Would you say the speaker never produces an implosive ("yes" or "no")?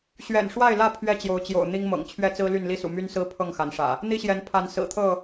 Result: yes